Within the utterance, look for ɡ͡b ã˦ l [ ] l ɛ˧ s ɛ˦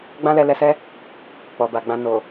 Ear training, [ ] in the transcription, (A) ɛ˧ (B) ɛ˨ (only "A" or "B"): A